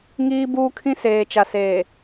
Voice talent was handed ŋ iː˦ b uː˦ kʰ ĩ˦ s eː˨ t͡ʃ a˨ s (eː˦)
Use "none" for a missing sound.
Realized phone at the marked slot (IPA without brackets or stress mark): eː˨